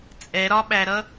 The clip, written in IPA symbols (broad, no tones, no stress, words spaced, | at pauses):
t͡sʼɛɾɒɓæɾʌ